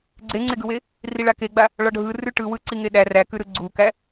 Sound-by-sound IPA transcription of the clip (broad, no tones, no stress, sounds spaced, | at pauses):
ɡ͡ǀ e ŋ͡ǀ e ɡ ɯ w e | r i ɭ a k e ɡ͡b a | ɭ ɒ ɖʱ ɯ r ʉ ʈ ɯ w ɯ ǀ i ŋ e ɗ æ r æ k ʉ ɾ ɯ ɡ͡ǀ u k æ